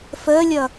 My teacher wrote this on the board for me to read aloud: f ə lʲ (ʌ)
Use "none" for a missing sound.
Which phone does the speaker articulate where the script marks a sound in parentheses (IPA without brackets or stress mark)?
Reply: ʌ